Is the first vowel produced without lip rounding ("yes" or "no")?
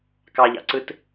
yes